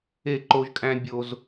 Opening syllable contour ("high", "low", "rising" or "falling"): falling